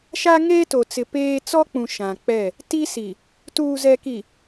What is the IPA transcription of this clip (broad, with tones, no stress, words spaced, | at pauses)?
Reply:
ʃa˦ ŋeː˦to˨t͡sɪ˨ peː˦ t͡sɔ˦k͡pũ˨ ʃã˨k͡pɛ˦˨ | ti˦si˨ | tuː˨zɛ˨ki˨